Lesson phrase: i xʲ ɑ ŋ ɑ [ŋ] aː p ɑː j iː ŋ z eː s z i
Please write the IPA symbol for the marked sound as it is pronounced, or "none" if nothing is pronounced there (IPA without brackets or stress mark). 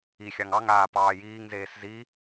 ŋ